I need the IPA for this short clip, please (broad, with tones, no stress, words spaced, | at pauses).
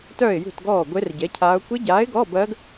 tœː˧˩ɪ̯jṳ˧˩tɡɔː˧˩ ɡʷe˦˥rɟɛ˨˥cʰaː˦˥ʊ̯ kʷe˦˥ɟaː˨˥ɪ̯ɡɔː˧˥˧bɜː˦˥ɡ